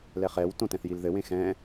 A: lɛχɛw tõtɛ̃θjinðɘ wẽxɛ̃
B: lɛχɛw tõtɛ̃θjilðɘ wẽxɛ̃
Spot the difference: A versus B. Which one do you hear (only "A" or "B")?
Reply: B